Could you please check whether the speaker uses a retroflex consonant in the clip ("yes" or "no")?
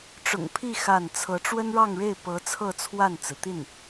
yes